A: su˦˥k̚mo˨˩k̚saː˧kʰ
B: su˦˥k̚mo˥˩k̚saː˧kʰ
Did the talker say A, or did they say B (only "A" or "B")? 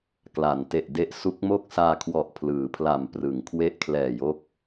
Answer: B